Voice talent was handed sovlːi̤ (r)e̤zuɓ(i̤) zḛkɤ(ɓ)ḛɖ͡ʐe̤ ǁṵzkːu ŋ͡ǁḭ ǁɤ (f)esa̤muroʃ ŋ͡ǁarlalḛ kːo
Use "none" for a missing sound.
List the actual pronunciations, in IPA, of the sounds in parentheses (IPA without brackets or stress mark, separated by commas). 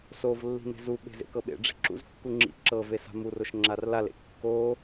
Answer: n, e̤, ɓ, v